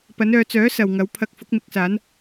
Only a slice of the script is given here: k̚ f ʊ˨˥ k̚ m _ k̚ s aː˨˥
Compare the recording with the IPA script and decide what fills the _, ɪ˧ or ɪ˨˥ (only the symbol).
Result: ɪ˨˥